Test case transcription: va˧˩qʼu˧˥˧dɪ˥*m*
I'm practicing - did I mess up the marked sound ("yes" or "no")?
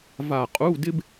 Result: yes